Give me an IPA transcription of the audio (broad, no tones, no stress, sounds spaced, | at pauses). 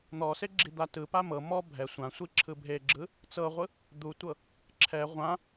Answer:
n̪ ɔ s e ɡ͡ǁ i d̪ a t ɯ p a m ɤ m ɔ bʱ ɛ sʷ ã sʷ i ǁʰ ɯ bʱ e ɡ͡ǁ ɯ | t͡s ɤ ʁʷ ɯ | d̪ u tʷ ɤ | ǁʰ ɛ ʁʷ ã